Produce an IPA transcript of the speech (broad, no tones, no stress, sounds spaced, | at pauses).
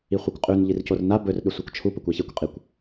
i χʷ ɨ kʷ qʼ ʉ n ʎ i r c o r n a b ɵ r ɗ ɵ sʷ a kʷ t͡ʃʰ u p ɵ kʷ a ç e kʷ qʼ i kʷ